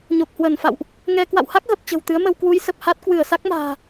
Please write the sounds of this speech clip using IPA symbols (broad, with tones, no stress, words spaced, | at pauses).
ɲo˨˩k̚hwə˧˩nfa̰˧˨wʔ | ŋɛ˧ kwa̰˧˨wha˦˥k̚ɣə˨˩p̚ t͡ɕə̤˨˩wt̪ɨ˨˦ə̯mə˧w kwu˨˦j sə˨˩p̚ha˦˥t̚ kwɨ˧˩ə̯sa˦˥k̚ ma̤ː˨˩